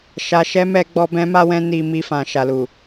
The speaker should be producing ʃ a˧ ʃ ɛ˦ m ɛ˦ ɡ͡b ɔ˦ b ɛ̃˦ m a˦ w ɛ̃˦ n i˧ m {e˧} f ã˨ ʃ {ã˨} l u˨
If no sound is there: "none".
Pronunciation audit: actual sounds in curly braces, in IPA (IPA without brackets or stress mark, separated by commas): i˧, a˨